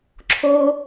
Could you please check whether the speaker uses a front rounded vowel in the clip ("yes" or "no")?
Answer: no